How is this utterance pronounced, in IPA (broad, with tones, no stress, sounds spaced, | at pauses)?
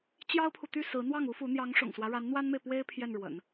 t͡ɕ j ɑ˥ ʊ̯ pʰ u˨ t̪ y˥˩ s ɹ̩˧˥ n̪ w ɑ˥˩ ŋ u˥ f u˧˥ n̪ j ɑ˧˥ ŋ ʂ ʊ̰˨˩ ŋ s w ä˦ ɻ a˧˥ n n̪ w a˥ n m e˨ ɪ̯ p w e˥ ɪ̯ pʰ j ɛ˥˩ n ɻ w ə̰˨˩˦ n